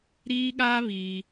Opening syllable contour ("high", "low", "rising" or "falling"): high